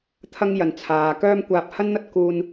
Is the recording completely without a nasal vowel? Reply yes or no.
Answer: yes